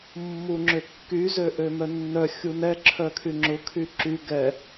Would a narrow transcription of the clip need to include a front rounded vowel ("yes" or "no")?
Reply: yes